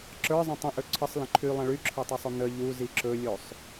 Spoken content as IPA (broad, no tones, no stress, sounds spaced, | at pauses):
ǁ ə˞ zˤ ə̃ tˤ ə̃ ʔ ɵ ǀʰ ə sˤ l ə̃ ǃʰ y lˠ ə̃ ɭ y ǁʰ ə˞ tˤ o sˤ o n̪ ə ʎ u z i ǁ ɵ lʲ o sˤ